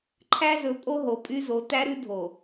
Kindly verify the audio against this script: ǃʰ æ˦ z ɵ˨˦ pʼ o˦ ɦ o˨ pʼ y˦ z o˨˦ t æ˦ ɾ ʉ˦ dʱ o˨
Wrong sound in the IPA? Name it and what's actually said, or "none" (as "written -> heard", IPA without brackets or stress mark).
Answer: none